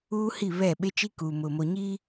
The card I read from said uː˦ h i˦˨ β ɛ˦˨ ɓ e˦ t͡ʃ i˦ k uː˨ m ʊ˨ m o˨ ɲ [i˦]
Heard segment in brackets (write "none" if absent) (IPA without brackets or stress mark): i˦